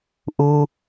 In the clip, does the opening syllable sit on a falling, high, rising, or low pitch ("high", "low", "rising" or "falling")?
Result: high